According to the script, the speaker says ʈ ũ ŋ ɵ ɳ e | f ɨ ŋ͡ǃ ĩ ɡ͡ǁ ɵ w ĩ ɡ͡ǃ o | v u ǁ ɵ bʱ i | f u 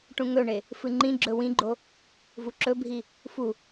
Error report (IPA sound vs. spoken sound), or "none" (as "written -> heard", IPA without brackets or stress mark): none